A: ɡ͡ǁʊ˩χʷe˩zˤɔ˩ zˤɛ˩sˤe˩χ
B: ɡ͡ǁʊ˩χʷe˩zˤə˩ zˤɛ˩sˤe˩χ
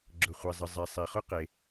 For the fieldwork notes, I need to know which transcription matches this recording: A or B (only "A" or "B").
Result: B